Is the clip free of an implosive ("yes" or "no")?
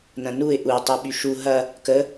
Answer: no